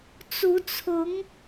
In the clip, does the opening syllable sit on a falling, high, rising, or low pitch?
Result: rising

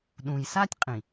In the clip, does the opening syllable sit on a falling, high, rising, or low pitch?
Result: low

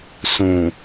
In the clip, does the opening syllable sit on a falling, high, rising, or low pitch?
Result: low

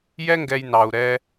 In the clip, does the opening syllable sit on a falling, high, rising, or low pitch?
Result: high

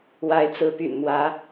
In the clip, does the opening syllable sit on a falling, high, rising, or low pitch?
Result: rising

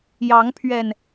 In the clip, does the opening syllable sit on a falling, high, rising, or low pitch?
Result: rising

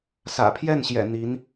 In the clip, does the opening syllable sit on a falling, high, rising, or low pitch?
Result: low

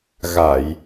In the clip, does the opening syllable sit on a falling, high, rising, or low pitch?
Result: low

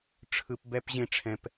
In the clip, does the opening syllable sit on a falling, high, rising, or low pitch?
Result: low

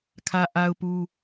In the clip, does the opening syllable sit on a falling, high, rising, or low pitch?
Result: high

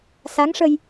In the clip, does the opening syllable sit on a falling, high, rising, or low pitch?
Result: rising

